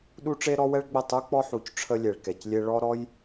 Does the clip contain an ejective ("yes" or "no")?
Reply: no